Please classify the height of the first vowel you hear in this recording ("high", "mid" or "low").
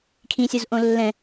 high